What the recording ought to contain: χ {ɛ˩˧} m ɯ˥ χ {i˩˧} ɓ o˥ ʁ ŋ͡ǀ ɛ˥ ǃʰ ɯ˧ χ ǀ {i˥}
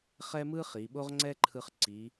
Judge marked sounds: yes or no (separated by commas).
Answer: no, yes, no